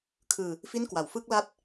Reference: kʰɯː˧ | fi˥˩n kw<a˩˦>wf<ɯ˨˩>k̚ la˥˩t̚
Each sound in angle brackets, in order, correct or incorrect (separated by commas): correct, incorrect